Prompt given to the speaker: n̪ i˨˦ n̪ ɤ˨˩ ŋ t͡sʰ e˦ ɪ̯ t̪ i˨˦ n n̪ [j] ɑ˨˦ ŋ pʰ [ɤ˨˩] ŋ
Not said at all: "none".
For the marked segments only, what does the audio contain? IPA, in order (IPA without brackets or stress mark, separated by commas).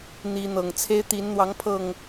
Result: w, ɤ˨˩